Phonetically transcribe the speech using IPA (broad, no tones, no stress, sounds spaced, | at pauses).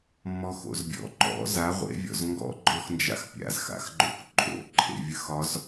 mː ɔ x o̰ z bʲ ɔ̰ ǃ ɔ̰ z a ʁʷ ḛ vʲ ɔ̰ z ŋ ɡ ɔ̰ ɡ͡ǃ ɔ x n d͡ʒ a̰ x pʲ a̰ z x a̰ x ɡ͡ǃ o̰ k ǃʼ o̰ ǃʰ ḛ vʲ ə x ɒ z